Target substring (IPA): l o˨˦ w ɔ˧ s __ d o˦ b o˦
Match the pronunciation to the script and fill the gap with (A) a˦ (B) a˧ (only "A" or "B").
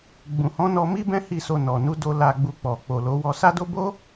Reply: A